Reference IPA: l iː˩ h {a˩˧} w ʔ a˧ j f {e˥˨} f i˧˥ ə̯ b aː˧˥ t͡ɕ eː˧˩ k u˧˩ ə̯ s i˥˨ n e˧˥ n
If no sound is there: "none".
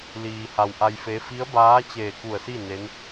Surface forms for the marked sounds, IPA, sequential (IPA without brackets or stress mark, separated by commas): a˩, e˧˥